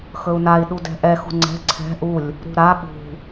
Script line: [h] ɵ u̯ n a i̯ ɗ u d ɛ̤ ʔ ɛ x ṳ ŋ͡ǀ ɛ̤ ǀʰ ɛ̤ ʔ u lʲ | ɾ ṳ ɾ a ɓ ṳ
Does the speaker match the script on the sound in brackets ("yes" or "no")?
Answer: no